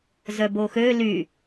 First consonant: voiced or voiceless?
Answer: voiced